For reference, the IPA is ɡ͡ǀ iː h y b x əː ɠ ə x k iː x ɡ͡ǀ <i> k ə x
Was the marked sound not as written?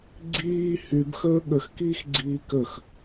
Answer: yes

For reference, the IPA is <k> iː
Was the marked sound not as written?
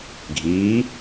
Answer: yes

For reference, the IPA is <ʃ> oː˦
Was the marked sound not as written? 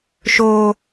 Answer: no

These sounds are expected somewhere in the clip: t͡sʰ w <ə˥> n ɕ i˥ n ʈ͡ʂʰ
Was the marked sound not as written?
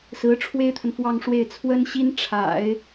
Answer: no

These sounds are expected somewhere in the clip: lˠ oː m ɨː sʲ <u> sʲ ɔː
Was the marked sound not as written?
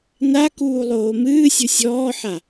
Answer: no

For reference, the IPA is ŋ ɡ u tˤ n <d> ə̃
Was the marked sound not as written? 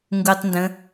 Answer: no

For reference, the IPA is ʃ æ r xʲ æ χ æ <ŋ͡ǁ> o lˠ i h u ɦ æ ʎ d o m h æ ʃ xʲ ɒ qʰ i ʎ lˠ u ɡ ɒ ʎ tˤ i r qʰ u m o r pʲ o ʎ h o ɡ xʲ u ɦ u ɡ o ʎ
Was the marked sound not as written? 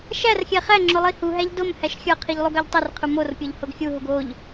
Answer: no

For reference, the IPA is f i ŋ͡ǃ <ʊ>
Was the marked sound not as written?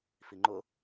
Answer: no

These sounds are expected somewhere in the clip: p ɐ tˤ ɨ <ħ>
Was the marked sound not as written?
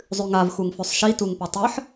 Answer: no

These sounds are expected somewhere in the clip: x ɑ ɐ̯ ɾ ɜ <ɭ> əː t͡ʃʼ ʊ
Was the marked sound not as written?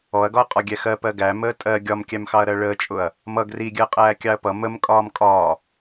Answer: no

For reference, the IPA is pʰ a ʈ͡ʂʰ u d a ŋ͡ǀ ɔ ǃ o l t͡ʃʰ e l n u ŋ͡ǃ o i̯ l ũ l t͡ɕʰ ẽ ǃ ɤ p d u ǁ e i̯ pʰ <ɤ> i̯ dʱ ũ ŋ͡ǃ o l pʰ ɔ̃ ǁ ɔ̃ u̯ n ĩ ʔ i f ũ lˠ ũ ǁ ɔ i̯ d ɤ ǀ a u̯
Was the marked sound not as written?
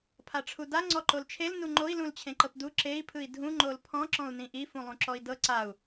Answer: yes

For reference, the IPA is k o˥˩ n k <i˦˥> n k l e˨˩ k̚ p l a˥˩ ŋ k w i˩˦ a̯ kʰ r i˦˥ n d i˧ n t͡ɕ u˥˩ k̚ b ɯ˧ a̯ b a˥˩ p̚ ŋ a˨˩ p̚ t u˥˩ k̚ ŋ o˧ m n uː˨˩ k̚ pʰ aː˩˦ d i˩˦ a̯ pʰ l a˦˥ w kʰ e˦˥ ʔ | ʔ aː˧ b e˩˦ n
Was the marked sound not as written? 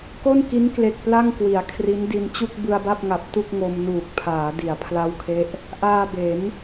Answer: no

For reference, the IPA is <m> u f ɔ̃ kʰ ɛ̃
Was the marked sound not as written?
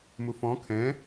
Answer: no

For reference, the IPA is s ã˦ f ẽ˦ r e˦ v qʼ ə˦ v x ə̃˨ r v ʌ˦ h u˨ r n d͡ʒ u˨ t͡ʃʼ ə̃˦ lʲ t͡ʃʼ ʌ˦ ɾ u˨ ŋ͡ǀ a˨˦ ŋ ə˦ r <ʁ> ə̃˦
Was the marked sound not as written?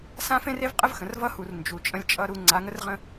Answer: no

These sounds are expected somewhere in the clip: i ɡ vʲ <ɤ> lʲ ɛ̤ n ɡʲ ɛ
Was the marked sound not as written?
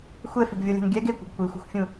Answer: no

